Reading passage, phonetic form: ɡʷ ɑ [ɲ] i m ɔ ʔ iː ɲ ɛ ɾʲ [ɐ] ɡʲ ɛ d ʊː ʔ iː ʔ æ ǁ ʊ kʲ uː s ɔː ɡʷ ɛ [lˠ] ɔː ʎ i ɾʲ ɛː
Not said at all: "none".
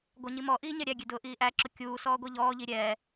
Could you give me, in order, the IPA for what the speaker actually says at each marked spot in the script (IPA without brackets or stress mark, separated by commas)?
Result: ɲ, æ, ʎ